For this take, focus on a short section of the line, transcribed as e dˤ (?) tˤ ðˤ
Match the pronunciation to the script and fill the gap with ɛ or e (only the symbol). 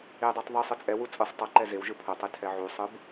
e